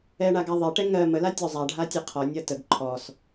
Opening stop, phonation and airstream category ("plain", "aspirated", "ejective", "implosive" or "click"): plain